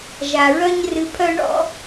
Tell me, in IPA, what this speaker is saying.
ʒ a˨ ɹ œ˦ ɲ r ɨ˧ pʰ œ˦ ɳ ɔ̰˧

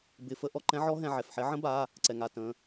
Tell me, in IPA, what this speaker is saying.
b ɪ˧˩˧ f ə˧˥ ʔ ɔ˧ ǃ ɛ̃˧˥ ʕ ɔ˧˥ ɦ ɛ̃˧ ʕ ɛ˩˧˩ f ħ ɛ˧˥ ʕ ə̃˧˥ b a˩˧˩ | ǀ ɛ˩ ŋ a˧˩˧ t ə̃˩˧˩

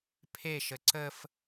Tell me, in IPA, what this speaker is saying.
pʰ e ʃ ə ǀ ə f

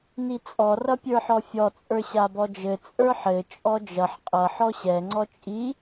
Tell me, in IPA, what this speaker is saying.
n i t͡sʼ ɔ r ʌ pʲ ə˞ ħ ɔ fʲ ɔ t͡sʼ ə˞ ɕ a b ɔ d͡ʒ ɘ t͡sʼ ə˞ ħ ɘ t͡ʃʼ ɔ d͡ʒ ʌ ħ qʼ ʌ ħ ɔ ɕ ɛ ŋ͡ǀ ɔ t͡ʃʼ i

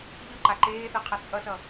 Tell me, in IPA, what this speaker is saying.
ʎ ɯ ǃ a ǃ eː θ ɛ qʰ ʌ t͡sʼ ʌ s ʌ

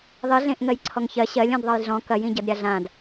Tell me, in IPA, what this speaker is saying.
ðˤ i ɮ ẽ ʔ ŋ ɜ j ǀʰ ɔ ŋ ç ɜ ɕ ɜ lʲ ɔ̃ d ðˤ ɐ j ɮ ɔ̃ k ɐ j ĩ ɟ ɐ d ɾʲ a ɮ ã d

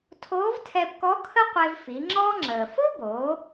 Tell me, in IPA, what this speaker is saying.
tʰ oː˧˥ v tʰ ɛ˧ b k ɔ˧˥ kʰ ə˥ qʷ e˧ v f i˩˧ ŋ͡ǁ ɔ˧ ŋ͡ǁ əː˩ f ʊ˥ b oː˩˧

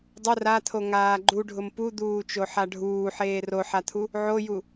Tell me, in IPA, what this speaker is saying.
dˤ ʊ r a t̪ʰ o ŋ aː ɡ͡ǃ u ɖʱ ʊ m p u d̪ uː t͡ʃ o ħ a ɖʱ uː ħ eː r o ħ a t̪ʰ u | ʕ o j u

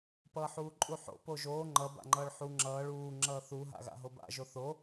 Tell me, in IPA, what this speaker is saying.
p ʌː ħ uː ǃʼ u ħ o̰ p o ʒ oː ŋ͡ǃ ʌ b a̰ ŋ͡ǃ ʌː ɭ ħ u ŋ͡ǁ ʌː ɭ uː ŋ͡ǁ ʌː θ u ɦ a̰ ɣ a̰ ɦ o b a̰ ʒ o θ o

